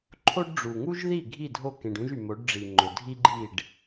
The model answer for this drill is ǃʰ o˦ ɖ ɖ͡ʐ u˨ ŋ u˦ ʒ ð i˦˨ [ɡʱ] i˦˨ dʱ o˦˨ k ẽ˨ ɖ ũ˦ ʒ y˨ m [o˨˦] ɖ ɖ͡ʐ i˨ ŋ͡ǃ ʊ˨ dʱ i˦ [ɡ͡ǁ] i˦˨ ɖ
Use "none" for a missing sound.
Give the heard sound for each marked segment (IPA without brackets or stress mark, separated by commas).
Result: ɡʱ, o˨˦, ɡ͡ǃ